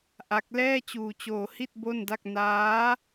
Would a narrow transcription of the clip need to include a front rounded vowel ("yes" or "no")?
no